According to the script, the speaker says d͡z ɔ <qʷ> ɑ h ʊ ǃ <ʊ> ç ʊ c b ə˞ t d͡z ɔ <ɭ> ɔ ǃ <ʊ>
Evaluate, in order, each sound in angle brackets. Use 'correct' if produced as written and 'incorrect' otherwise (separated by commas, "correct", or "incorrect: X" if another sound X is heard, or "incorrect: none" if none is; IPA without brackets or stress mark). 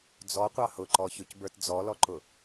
correct, incorrect: ɔ, incorrect: l, correct